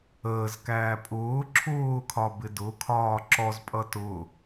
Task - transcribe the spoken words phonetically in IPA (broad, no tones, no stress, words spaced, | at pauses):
əːzkæː pʼʊː ǁʰʊːkʰɒbɪ dʊkʰɒː ǁɔzpʼʌ tʊ